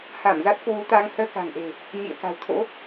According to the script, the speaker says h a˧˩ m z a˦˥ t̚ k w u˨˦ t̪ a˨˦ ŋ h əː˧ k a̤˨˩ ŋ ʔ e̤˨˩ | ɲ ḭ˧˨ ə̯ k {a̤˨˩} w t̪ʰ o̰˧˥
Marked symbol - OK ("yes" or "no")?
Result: yes